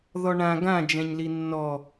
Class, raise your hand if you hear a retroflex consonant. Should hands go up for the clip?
yes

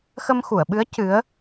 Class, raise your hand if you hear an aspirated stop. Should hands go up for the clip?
no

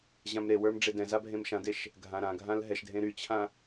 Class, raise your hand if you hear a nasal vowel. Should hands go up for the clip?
yes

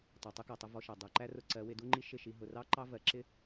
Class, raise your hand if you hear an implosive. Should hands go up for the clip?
no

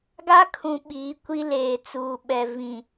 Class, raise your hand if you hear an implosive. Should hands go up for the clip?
yes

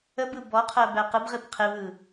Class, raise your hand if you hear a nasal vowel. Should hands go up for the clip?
no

